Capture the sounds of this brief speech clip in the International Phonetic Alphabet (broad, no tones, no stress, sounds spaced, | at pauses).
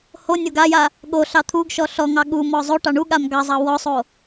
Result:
h o nʲ o ɡ a j a | ɠ o ɬ ɑ t̪ʰ u ɡ ʃ ɔ ɬ ɔ ŋ ɑ ɠ u m ɔ zˤ o ʈ ɑ ɳ u ɠ a m ɡ ɑ zˤ ɑ w ɔ sˤ o